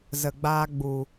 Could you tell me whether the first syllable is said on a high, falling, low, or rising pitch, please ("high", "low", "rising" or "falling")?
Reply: low